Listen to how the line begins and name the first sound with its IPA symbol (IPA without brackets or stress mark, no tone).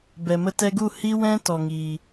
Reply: b